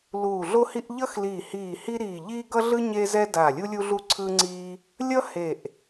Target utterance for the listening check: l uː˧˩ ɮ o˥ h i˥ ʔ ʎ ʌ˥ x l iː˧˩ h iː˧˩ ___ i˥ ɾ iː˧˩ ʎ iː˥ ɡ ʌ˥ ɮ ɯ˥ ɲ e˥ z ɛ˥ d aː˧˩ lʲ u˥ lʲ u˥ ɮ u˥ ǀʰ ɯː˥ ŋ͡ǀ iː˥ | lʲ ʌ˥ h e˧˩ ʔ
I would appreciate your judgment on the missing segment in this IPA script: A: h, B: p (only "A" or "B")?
A